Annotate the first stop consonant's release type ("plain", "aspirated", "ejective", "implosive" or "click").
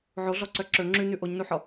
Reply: click